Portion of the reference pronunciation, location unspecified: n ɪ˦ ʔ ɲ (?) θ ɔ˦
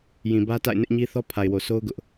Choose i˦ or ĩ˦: i˦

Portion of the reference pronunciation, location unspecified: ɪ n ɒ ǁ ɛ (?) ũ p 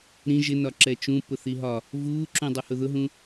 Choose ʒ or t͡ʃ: t͡ʃ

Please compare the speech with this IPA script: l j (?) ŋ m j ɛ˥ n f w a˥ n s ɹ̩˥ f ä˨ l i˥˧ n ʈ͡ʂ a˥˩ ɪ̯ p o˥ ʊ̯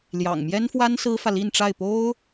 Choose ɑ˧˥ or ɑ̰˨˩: ɑ̰˨˩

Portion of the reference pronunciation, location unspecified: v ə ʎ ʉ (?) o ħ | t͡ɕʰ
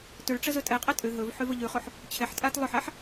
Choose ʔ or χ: χ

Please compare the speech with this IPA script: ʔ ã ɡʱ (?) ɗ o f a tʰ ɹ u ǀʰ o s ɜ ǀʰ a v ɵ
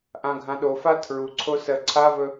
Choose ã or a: ã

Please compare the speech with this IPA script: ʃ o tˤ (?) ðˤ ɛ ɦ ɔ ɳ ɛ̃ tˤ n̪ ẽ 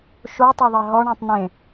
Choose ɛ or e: e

